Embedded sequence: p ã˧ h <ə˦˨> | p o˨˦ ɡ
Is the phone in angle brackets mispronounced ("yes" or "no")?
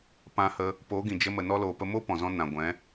yes